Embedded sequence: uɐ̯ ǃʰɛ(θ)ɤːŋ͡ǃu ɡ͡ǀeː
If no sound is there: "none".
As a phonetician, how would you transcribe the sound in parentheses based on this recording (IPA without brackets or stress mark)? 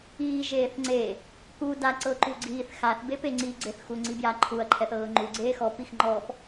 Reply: θ